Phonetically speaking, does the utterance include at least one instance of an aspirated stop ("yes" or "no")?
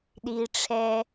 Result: yes